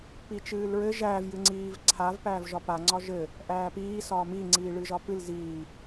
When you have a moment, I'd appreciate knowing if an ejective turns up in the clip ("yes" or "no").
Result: no